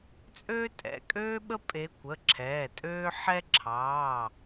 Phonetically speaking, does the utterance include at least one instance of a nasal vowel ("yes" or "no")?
no